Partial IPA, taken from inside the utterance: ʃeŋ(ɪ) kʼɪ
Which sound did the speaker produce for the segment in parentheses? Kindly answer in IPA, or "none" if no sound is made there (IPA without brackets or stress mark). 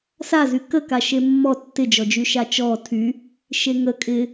ə